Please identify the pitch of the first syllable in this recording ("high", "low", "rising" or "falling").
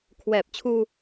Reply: low